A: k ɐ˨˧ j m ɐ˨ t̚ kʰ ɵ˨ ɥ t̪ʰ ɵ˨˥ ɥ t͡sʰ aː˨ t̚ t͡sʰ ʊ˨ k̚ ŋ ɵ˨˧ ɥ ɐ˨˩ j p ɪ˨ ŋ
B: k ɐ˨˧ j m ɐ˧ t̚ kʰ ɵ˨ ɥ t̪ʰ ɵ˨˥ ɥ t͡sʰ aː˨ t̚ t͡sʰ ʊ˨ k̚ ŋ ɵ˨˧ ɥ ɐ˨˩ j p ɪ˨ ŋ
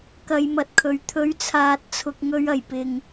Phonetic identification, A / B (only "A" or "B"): A